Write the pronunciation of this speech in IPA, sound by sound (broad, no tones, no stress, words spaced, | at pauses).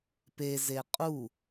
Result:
peze qʼu